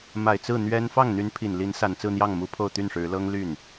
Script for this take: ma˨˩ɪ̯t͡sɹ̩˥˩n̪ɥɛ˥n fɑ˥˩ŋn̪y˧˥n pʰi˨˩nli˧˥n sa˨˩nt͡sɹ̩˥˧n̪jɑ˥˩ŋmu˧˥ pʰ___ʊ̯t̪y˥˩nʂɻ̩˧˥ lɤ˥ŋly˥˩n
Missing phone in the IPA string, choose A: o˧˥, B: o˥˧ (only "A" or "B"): B